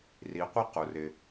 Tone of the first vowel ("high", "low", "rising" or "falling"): rising